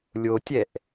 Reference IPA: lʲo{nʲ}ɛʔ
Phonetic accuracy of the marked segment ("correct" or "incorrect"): incorrect